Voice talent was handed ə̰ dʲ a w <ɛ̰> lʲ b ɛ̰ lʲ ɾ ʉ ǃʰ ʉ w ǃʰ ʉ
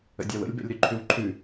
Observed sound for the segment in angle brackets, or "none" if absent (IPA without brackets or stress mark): ə̰